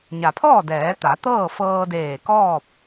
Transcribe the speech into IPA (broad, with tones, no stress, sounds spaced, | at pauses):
ɲ a˩ pʰ ɔː˥˨ d ɛː˩˧ t̪ a˩˧ t̪ ɤː˥˨ f ɤː˧ d eː˧˩ k ɔː˥˨ p̚